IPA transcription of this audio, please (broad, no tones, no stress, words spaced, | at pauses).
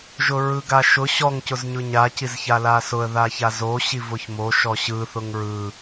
ʒʊɹɯɡaʃʊ ɕɔŋ cʊzɲʊɲa cizçalasʊə̯ ðaçazo ɕivʊçmo ʃɔɕɯ θʊŋɹɯ